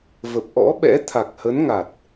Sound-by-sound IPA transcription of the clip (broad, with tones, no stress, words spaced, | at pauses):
və˨˩p̚ʔɔ̰˧˥ɓɛ̰˧˥ t̪ʰa˨˩k̚hə˨˦nŋa˨˩t̚